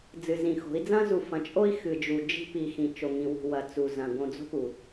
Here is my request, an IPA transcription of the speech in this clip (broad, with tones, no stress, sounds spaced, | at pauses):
d͡z ɨ˨ z ĩ˨ x o̤˨˦ i̯ d͡z ɐ̃˦ z u˨ f ɐ̃˨ t͡ʃʼ o˦ i̯ x ɨ˨ d͡ʒ u˨ d͡ʒ i̤˦ p i˨ x ĩ˨ t͡ʃ o˨ ŋ ĩ˨ w ṳ˨ w ɐ˨ t͡s u˨ z ɐ̃˨ ɡ õ˨ d͡z o̤˦ p u˨